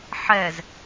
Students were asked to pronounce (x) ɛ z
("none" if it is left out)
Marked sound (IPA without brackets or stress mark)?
ħ